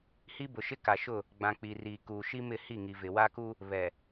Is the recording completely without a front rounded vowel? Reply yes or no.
yes